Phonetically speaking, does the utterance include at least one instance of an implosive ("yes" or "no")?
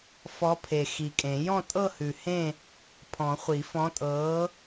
no